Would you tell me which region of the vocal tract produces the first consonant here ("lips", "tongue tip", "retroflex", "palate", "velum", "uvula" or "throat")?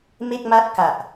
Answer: lips